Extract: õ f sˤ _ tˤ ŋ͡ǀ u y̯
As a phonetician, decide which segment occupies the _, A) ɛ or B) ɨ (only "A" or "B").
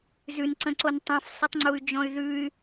B